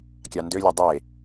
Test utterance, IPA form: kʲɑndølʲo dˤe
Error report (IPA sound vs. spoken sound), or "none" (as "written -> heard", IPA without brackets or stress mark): none